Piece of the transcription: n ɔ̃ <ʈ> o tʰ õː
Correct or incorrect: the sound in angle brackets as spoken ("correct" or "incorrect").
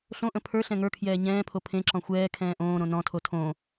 incorrect